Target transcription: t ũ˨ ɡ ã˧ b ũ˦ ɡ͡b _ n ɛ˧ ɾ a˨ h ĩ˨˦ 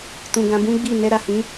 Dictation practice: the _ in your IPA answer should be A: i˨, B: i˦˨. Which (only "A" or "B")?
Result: B